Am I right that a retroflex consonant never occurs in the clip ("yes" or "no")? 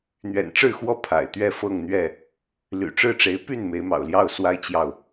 no